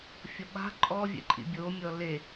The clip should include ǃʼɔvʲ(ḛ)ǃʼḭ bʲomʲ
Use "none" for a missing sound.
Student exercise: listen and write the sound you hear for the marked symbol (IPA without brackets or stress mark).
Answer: ɛ̰